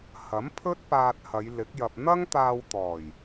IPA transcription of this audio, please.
h ɐ˨˥ m pʰ ɵ˥ t̚ p aː˧ t̚ h ɐ˨˧ j l ɪ˨˥ k̚ j ɐ˧ p̚ n̪ ɐ˥ ŋ t̪ aː˧ w t̪ ɔː˨˩ j

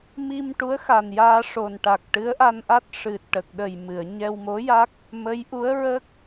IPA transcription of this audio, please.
m i˧ m ʈ u˧˥ ə̯ x a˨˩ n j aː˧ ʂ o˨˩ n ʈ a˨˩ k̚ ʈ ɨ˧˥ ə̯ ʔ a˧ n ʔ a˦˥ t̚ ʂ ɨ˨˩ t̚ ʈ ə˨˩ k̚ ɗ ə˨˩ j m ɨ˨˩˨ ə̯ ɲ ɛ˧ w m o˧˥ j a˦˥ k̚ | m ə˧˥ j ʔ u˧˥ ə̯ ɹ ə˦˥ k̚

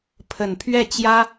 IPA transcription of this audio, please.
pʰ ə˨˩ n pʰ ɥ ɛ˥˩ t͡ɕ j ä˥

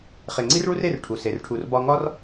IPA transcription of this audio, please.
χ e˩ ŋ͡ǀ i˥ r ɭ u˥ r e˦ r ʈʰ u˩ s e˩ r ʈʰ u˨ r b ɒ˦ ŋ ɒ˥ r

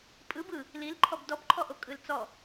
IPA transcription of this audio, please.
pʼ ɯ b ɯ | l i l ǃʰ ɔ b d ɔ b ǃʰ ɔ ʔ o kʼ ɯ l t͡s ɔ

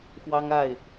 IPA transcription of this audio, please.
x w ɑ˦ ŋ a˥˨ ɪ̯

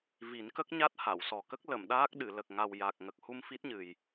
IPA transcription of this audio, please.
v i˨˩˦ n k ə˦˥ k̚ ɲ a˦˥ t̚ h a˨˩˨ w s ɔ˨˩ k ə˦˥ k̚ l ə˨˩˨ m ɗ aː˦˥ k̚ ɗ ɨ˨˩˨ l ə˨˩ k̚ ŋ a˨˩ w j a˨˩ k̚ ŋ ə˨˩ k̚ h u˧ m f i˦˥ t̚ ɲ ɨ˨˩ j

